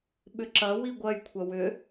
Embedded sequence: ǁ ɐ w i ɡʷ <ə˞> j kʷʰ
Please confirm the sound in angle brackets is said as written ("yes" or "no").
no